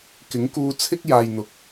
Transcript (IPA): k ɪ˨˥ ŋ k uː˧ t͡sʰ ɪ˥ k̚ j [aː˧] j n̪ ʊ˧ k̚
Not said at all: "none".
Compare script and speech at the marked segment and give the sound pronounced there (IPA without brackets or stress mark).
aː˧